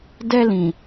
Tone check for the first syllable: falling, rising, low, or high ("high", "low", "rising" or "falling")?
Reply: high